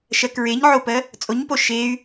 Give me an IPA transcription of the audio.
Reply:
ʃ ɜ k ɹ e ɲ ʕ o p ɜ | t͡sʼ o ɲ p o ʃ e y̯

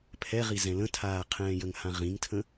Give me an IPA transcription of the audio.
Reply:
pʰ ɛ ʁ i z ɛ̃ l ə̃ tʰ aː qʰ ɛ̃ː j ə ŋ h ã ʁ ĩ ŋ tʰ ə̃

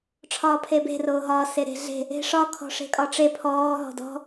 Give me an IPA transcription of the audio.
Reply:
ʈ͡ʂʰ ɒː pʰ e b e̤ r oː ɦ ɒː s e ɾ e̤ ɮ e̤ | e̤ ʂ ɒ kʰ ɔ̤ ʂ e̤ kʼ ɒ ʈ͡ʂ e pʰ ɔː ɦ ɔ̤ d ɔ̤

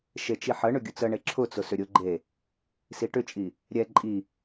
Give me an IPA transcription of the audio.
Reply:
ʃ e t͡ʃ i ħ ə ɳ ʏ ɡʲ ʊ t͡s ə ɳ e ǁʰ ʊ t͡s ʊ s ʏ ɾʲ ʊ ɡ͡ǃ e | s i ʈ ʏ t͡ʃʼ i | ɾʲ ɛ ǃʼ i

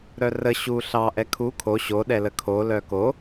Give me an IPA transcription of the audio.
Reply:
ɾ œ r ə ɕ u ɬ ɑ ʔ ɛ kʰ u kʰ o ɕ o ɗ ɛ l ə kʰ o l œ k o

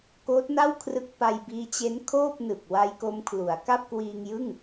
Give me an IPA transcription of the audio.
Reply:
k oː˦˥ t̚ n a˥˩ w kʰ r ɯ˦˥ k̚ p a˧ j b iː˦˥ t͡ɕ e˦˥ n kʰ oː˥˩ p̚ n ɯ˨˩ k̚ w a˦˥ j k o˦˥ m kʰ l u˩˦ a̯ k a˥˩ p̚ k w iː˧ ŋ j ɯ˥˩ ŋ

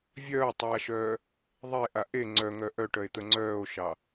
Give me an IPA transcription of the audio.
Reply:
vʲ œː tˤ aː ʃ œː | ðˤ e ʔ a ʔ e ŋ͡ǀ œ ŋ œ ʔ œ ʈ œ e̯ t̪ ə ŋ͡ǀ œː o̯ ʃ ɑ

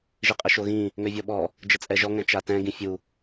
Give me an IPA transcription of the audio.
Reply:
ʒ i qʼ ə ʃ o ɣ ĩ | ŋ ø vʲ ɔ ɓ ɔ | d͡ʒ ə t͡sʼ ɛ ʒ ɔ ŋ ɛ̃ t͡ʃ a t ɛ̃ ɡ ĩ fʲ u

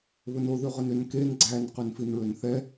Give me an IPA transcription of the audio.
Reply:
β ɵ n o ð ʉ ʁ ɵ n ø n k e n ɡ͡ǀ æ n q ʉ n f i n ɹ ø n θ ɛ

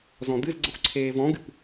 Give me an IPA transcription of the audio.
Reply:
z ɔ̃ d̪ ɨ z ɡ͡ǀ ə xʷ ǀʰ eː v ɔ̃ ɡ ɨ p

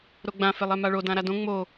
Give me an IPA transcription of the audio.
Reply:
ɾ o ɡ͡b ã f e lˠ ɛ m a ɭ o d ã ɾ a d õ ŋ͡m o

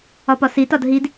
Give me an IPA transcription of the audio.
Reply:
ɒ p ɒ s i t ɒ d ɦ i d

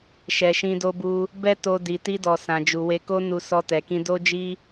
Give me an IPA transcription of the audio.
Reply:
ʃ ɛ˨ ʃ ĩ˧ d o˧ b u˧ | b ɛ˦ t o˧ d i˨ t i˧ d ɔ˨ s ã˨ d͡ʒ u˨ w e˧ k o˦ n u˧ s ɔ˧ t ɛ˨ k ĩ˧ d o˦ d͡ʒ i˦

